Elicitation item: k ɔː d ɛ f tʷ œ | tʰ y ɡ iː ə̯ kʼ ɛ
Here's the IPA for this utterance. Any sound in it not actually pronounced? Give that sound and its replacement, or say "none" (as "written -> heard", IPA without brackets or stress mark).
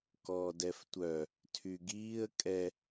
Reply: none